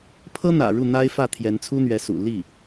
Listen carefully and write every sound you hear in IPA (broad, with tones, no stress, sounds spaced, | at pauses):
pʰ ɤ˥ n̪ ä̰˨˩ ɻ u˥˩ n̪ a˥ ɪ̯ f ä˥˩ t̪ʰ j ɛ˧˥ n t͡sʰ u˥ n̪ ɥ ɛ˧˥ s ṵ˨˩ l i˥˩